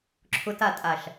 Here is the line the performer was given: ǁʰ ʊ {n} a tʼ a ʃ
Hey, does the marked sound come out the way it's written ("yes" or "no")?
no